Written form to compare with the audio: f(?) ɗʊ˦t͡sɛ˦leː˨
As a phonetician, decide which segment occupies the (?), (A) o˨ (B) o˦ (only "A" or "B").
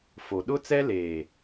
A